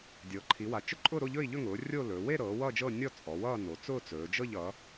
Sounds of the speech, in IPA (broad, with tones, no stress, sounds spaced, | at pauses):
dʲ ɤː˩˧ ǃʰ i˩˧ w a˩˧ t͡ʃ ʊ˥˧ ǃʼ ʊː˥˧ ɾ o˥˧ ʎ ɵ˥˧ i̯ ʎ ɵ˥˧ ŋ ʊː˩˧ rʲ o˥˧ l ɵː˩˧ w e˥˧ ɾ ɤː˩˧ w ʌː˥˧ d͡ʒ ɤ˥˧ nʲ ɔ˥˧ t͡sʼ ɔ˩˧ w ʌː˥˧ n o˩˧ t͡s ʊː˥˧ t͡s ɵː˩˧ d͡ʒ ɤ˥˧ ʎ ʌ˩˧